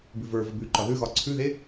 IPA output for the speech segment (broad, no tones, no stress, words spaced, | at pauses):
bʉvə˞vəb ʉǃɒ ðʉɣɒ ǀʰʉðe